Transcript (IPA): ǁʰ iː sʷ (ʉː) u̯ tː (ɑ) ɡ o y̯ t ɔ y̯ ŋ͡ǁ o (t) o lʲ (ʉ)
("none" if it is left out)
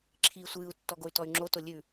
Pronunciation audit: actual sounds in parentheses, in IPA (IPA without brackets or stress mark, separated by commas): ɨː, ɔ, t, ʉ